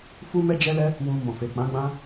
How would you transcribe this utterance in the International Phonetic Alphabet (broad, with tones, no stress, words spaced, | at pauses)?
fu˦mɛ˦d͡ʒɛ˦lɛ˦ | wũ˧ mɔ̃˨fe˨k͡pã˨˦ ɡ͡bã˦